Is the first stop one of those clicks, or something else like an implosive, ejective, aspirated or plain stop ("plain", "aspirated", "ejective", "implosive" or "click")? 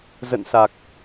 plain